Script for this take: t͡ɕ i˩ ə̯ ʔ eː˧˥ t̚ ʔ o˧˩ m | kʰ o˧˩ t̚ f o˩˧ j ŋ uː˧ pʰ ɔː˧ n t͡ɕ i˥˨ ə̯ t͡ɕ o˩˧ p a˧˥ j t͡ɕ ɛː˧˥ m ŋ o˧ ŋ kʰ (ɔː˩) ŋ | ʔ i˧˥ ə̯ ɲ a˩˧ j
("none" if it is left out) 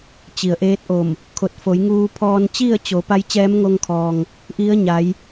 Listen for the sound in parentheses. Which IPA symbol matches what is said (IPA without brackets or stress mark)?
ɔː˩